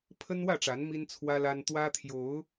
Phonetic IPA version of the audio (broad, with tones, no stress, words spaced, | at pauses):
pʰə˦nwä˥˨ʈ͡ʂa˨˦n mi˦nt͡sʰwä˦la˦n t̪wä˦t̪ʰjo˨˦ʊ̯